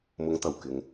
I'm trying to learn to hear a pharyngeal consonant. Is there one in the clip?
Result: no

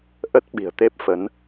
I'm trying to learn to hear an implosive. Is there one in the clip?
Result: yes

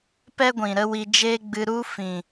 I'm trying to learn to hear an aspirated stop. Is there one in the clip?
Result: no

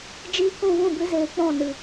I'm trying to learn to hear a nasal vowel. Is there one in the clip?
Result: yes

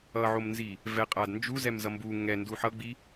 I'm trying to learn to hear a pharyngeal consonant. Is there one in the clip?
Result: yes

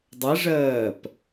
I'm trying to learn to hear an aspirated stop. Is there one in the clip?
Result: no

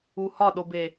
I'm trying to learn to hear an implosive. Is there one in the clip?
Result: yes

